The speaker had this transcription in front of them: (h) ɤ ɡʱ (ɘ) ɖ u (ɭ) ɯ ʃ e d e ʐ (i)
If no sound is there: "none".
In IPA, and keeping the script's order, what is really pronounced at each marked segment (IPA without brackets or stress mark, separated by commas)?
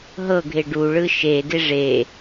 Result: ɦ, e, ɭ, e